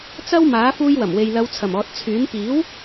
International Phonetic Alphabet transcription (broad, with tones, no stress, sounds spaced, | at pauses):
t͡s ɐ˥ w m aː˨˥ f uː˧ j w ɐ˨˩ m w e˨ j l ɐ˨˧ w t͡sʰ ɐ˨˩ m ɔː˨ t̚ t͡sʰ yː˨˥ n p iː˨˥ w